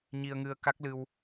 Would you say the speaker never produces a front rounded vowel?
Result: yes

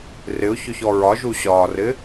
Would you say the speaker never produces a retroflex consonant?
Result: yes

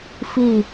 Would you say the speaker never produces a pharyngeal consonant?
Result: yes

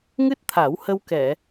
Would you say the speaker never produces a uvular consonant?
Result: yes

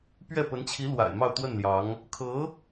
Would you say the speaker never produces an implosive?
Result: yes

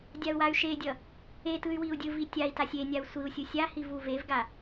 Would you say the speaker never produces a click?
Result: yes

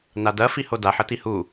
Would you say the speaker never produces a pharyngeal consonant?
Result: no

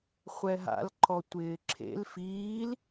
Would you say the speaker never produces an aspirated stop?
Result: no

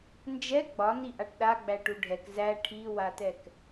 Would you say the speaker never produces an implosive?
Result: no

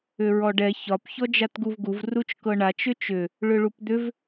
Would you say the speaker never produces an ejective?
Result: yes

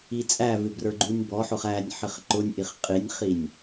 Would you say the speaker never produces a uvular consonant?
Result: no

